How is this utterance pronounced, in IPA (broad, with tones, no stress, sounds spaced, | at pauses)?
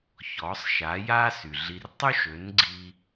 ç ɔ˩˥ sˤ ʃ a˩˥ j a˥ s y˩ ɮ i˧ r tˤ y˥ ʃ ø˩˥ n ɡ͡ǀ i˧